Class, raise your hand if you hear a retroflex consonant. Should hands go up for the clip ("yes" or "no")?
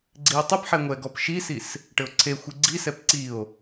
yes